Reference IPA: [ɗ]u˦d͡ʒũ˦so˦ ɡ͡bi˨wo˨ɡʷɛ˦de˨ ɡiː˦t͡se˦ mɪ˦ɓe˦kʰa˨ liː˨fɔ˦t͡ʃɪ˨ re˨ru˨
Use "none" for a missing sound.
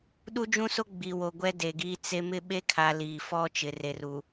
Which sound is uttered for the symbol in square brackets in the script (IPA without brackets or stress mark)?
ɗ